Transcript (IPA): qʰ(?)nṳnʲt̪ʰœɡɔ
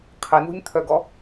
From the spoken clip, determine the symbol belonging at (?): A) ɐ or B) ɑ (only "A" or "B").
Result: A